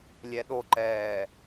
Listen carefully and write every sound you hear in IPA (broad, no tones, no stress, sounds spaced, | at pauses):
lʲ ɛ ɗ o ǃ ɛː